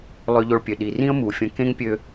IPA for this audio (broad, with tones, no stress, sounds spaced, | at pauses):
lˠ ø˧ ʎ o˧ ɭ pʲ ø˩ ɗ i˩ r ĩ˥ ə̯ m u˩ fʲ ə̃˧ k ẽ˥ ŋ pʲ ø˧